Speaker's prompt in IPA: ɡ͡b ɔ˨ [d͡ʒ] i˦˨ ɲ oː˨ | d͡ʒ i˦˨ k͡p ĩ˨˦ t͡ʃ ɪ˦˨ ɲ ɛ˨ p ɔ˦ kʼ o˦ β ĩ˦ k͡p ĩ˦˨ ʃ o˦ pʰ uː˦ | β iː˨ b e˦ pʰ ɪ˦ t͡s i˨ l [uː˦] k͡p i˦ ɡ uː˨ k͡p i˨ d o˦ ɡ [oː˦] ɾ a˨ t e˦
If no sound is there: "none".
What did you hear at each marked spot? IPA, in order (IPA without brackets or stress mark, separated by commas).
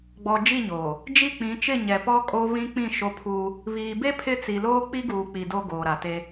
d͡ʒ, oː˦, oː˨